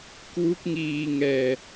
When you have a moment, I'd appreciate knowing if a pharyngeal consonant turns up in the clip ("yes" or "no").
no